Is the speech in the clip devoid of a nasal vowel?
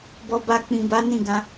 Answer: no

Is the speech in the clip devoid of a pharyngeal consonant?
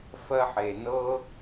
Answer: no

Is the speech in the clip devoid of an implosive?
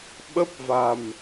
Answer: no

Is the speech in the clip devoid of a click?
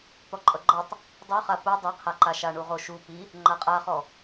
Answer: no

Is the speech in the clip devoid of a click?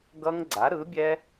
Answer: no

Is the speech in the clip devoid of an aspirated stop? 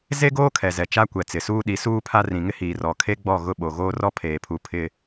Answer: no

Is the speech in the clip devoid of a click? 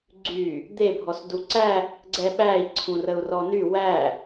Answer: no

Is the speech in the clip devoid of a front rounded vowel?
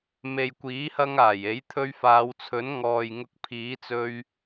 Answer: yes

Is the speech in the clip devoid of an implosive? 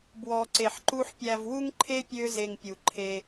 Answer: yes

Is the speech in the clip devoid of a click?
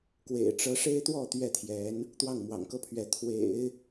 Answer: yes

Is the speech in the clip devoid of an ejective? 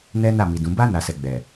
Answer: yes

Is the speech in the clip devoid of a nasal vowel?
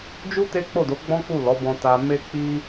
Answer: no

